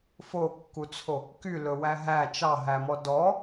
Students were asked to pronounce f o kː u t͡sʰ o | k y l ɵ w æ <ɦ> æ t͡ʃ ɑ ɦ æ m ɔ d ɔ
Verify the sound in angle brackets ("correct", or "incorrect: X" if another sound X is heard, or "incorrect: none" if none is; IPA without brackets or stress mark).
correct